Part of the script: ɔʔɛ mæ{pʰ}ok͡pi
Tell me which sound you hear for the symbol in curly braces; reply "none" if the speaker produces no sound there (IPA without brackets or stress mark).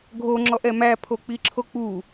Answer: pʰ